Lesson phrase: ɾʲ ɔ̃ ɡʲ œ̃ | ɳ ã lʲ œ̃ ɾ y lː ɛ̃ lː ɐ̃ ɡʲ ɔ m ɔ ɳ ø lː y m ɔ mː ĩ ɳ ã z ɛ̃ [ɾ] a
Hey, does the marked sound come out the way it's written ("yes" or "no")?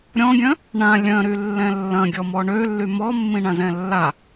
no